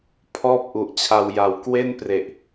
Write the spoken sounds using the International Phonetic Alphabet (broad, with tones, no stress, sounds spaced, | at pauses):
pʰ ɔː˥˩ p̚ ʔ u˨˩ ʔ t͡ɕʰ a˧ w j a˨˩ w k w e˥˩ n p r e˨˩ ʔ